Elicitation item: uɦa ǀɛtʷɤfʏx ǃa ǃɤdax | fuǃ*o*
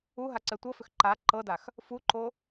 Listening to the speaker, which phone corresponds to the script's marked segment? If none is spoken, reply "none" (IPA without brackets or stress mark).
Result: o